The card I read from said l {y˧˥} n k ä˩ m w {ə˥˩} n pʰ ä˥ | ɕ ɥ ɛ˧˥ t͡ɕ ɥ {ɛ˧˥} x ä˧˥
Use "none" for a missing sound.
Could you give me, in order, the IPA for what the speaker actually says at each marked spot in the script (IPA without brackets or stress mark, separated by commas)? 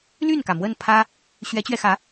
y˥˩, ə˥˩, ɛ˧